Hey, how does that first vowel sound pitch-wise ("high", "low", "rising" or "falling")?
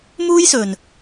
high